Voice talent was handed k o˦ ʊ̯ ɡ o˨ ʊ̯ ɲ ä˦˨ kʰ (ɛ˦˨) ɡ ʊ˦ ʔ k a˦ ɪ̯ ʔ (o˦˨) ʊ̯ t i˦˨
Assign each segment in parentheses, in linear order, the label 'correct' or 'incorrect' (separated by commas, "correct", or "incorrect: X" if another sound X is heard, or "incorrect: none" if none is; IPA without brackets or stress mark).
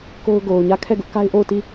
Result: correct, correct